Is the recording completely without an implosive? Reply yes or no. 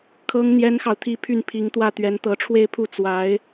yes